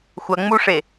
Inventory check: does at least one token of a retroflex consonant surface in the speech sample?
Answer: yes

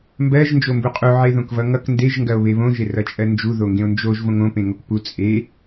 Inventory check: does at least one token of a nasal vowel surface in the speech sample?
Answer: yes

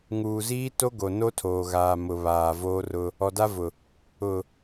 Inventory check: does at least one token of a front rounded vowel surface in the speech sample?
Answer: no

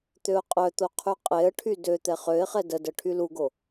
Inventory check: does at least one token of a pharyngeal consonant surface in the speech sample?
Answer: no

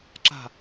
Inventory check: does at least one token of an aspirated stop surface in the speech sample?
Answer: no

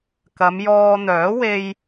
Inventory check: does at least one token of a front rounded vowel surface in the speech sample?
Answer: yes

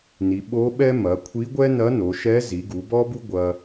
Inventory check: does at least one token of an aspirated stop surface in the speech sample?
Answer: yes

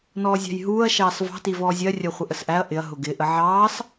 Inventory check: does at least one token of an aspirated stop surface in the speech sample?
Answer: no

